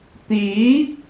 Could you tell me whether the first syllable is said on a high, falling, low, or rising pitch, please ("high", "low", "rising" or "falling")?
rising